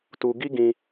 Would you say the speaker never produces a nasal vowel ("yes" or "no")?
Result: no